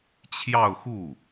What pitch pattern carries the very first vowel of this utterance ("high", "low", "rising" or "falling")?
falling